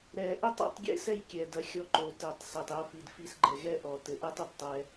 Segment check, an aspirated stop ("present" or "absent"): absent